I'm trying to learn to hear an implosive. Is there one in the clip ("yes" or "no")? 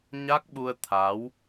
yes